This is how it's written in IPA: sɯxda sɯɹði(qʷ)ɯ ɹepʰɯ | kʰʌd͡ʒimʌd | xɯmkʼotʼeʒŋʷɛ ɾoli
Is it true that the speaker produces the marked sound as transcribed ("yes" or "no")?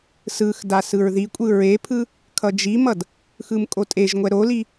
no